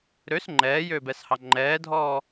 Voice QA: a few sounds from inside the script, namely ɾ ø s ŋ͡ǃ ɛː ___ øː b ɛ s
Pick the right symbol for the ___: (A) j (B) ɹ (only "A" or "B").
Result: A